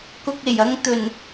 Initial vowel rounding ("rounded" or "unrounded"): rounded